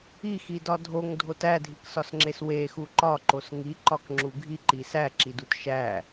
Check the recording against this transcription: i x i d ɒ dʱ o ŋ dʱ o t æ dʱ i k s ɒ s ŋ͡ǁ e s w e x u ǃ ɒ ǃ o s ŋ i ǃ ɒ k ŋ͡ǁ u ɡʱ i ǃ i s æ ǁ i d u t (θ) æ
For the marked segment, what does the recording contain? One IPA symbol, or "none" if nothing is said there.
ʃ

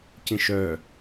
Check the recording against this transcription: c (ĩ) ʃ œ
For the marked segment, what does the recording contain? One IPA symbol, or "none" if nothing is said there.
ĩ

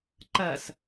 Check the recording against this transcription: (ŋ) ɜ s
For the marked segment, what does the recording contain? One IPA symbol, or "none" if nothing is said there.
ǃ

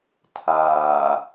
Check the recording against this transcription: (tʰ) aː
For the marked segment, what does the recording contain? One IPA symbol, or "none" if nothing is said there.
tʰ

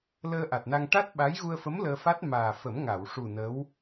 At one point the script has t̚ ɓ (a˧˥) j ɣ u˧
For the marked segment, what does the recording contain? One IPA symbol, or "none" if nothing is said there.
a˧˥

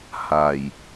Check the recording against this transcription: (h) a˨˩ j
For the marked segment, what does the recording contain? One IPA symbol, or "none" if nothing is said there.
h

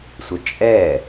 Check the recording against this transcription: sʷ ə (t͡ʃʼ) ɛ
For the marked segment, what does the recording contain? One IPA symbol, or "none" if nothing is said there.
t͡ʃʼ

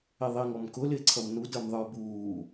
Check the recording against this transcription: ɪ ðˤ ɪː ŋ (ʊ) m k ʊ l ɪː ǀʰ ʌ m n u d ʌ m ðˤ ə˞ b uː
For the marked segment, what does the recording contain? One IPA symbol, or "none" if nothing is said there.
ɔ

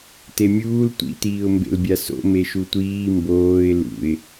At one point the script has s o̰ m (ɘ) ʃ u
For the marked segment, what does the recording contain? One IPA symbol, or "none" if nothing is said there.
e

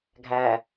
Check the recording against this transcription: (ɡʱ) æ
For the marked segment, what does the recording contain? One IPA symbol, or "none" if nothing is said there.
ɡʱ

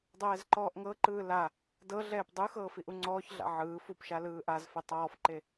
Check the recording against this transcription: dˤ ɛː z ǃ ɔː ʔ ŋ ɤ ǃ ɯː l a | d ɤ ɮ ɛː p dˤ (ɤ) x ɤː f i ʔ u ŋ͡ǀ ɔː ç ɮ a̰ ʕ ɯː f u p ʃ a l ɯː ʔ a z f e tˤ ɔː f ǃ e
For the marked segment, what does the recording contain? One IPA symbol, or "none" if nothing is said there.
ɯ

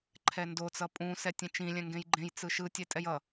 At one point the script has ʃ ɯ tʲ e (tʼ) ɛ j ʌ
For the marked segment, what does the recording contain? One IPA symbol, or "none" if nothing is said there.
tʼ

